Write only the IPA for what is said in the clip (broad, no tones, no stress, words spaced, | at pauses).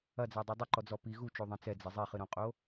ɐd͡zadˤe dˤɘǃɔd͡zɔ pi ɣut͡ʃoðˤɛ̃ t͡sɛd͡zɛ zˤiχɨɾõqʼo